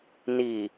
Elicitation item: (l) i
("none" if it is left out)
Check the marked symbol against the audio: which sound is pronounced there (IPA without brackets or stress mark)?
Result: n